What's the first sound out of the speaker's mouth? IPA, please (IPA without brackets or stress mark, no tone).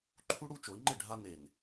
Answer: ǃʰ